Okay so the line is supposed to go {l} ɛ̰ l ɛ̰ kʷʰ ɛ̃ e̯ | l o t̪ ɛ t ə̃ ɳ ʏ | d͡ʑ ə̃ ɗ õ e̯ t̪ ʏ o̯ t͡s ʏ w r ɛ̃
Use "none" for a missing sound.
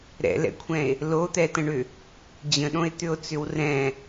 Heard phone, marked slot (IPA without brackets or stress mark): ɾ